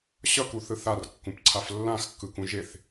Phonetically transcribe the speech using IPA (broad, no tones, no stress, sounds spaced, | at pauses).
ɕ ʌ k u θ ɯ θ a r kː ũ p ǀʰ a f lː ã x kː ɯ k ũ ʒ e θ